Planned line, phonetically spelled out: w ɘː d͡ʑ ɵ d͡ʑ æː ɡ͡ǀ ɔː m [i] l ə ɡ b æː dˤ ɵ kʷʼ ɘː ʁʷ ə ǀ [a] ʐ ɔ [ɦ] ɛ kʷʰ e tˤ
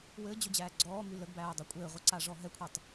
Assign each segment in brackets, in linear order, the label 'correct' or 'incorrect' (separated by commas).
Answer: incorrect, correct, correct